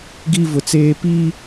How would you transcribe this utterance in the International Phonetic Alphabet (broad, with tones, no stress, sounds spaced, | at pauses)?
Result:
ɡ i˦ v ʊ˨ t͡s eː˦ p iː˦